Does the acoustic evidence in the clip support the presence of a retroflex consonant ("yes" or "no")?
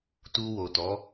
no